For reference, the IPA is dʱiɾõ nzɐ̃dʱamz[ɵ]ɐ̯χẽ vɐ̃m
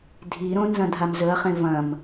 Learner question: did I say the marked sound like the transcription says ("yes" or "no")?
yes